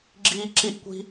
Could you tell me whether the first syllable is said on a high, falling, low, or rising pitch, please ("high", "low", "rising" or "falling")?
high